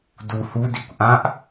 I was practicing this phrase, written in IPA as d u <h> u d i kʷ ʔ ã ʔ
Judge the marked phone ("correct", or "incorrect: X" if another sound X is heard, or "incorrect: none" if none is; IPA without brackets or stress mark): correct